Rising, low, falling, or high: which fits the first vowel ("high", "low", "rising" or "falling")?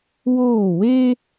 falling